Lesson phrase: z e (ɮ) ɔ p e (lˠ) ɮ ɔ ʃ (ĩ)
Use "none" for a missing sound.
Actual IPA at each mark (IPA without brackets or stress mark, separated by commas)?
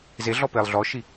ɮ, lˠ, i